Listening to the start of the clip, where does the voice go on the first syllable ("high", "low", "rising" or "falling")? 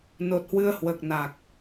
low